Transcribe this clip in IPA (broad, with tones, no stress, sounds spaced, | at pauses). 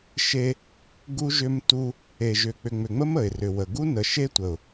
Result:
ʃ e˦ | ɡ u˦ ʒ ʏ˦ m t u˦ | e˨ ʒ ʏ˨ k͡p ʏ˨ ŋ͡m ʏ˨ ŋ͡m ə˦ m ə˨ ɪ̯ r ʏ˨ w ə˨ ɡ u˦ n ə˨ ʃ e˦ tʷ ə˨ ʊ̯